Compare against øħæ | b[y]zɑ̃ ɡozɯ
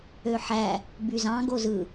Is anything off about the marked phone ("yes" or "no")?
no